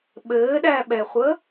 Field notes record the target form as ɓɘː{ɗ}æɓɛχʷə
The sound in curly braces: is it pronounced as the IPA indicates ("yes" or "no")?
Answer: yes